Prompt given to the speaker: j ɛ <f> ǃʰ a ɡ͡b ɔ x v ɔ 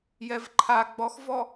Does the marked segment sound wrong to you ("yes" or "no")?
yes